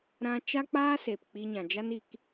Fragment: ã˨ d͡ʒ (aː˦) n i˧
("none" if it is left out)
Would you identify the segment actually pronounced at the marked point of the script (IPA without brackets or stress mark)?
a˦